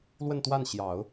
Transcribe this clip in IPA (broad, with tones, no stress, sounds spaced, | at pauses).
l w ə˥˧ n t̪ w a˥˩ n ɕ j ɑ˨˩˦ ʊ̯